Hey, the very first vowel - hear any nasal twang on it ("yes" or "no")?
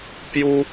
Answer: no